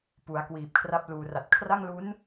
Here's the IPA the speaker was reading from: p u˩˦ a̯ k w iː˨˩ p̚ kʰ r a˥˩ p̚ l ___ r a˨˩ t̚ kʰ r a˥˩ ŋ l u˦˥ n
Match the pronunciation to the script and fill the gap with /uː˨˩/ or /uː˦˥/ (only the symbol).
uː˨˩